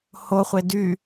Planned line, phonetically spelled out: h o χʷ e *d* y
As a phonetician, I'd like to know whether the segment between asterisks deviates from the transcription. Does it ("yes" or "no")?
no